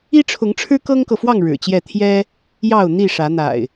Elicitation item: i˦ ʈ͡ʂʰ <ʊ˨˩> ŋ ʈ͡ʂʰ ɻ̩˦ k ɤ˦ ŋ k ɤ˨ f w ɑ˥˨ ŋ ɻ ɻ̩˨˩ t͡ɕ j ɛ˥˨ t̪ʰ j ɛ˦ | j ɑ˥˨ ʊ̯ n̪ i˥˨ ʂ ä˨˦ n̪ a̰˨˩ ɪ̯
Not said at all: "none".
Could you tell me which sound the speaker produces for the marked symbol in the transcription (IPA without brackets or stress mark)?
ʊ˨˦